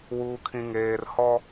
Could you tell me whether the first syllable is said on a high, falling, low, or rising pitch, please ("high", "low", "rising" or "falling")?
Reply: low